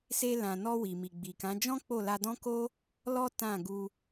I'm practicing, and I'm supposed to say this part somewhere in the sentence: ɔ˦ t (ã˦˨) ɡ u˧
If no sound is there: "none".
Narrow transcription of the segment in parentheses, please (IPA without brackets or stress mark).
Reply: ã˦˨